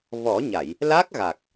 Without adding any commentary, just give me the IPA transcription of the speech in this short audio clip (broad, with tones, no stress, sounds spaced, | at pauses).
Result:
v ɔ˨˩˦ ɲ a˨˩˨ j | l a˦˥ k̚ ɣ a˨˩ k̚